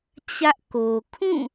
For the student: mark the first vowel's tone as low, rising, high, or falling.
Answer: high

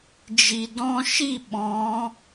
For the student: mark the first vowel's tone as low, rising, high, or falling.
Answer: low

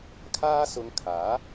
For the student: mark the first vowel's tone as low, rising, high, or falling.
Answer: high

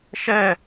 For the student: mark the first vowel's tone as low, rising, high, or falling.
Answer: falling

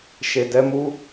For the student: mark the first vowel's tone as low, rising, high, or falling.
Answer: low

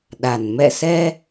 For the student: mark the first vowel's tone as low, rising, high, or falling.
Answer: low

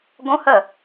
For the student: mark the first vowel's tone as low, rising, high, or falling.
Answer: high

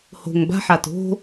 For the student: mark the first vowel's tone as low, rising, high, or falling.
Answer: low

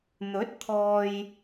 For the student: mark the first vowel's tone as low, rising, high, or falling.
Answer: rising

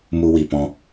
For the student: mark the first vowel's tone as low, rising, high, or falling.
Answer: high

